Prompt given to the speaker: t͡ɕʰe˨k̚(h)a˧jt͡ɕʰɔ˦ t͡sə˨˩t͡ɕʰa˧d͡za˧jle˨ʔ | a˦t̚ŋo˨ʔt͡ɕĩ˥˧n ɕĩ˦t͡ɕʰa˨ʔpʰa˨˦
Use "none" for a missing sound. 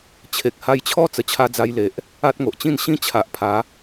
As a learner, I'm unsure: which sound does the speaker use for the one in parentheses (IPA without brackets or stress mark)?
h